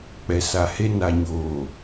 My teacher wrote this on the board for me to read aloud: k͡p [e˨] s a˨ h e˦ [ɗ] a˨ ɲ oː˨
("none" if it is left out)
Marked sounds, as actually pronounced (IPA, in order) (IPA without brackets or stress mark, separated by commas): ɛ˨, n